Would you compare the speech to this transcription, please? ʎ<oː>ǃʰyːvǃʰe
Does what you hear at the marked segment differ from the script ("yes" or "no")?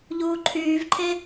yes